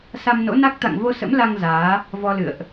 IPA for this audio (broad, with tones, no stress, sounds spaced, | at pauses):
s a˧ m n o̰˧˥ n a˦˥ k̚ t̪ a̰˧˨ ŋ v o˧ s ə̰˧˥ m l a˧ ŋ z aː˨˦ | v ɔ˧ l ɨ̰˧˨ ə̯ ʔ